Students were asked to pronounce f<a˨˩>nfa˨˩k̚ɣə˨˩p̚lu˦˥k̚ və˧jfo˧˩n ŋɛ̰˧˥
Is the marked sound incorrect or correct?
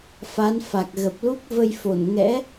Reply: incorrect: a˨˦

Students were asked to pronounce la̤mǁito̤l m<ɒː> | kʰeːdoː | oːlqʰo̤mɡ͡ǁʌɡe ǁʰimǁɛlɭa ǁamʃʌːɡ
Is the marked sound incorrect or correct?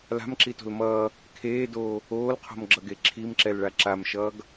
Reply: incorrect: ʌː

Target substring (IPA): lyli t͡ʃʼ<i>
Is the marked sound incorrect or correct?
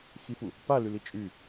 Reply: incorrect: y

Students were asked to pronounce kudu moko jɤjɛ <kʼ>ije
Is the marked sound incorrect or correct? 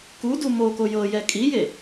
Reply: correct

